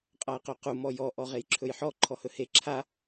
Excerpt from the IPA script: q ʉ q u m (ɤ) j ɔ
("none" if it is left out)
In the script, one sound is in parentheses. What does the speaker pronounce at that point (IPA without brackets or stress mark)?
ɔ